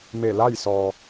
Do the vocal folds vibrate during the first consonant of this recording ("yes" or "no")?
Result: yes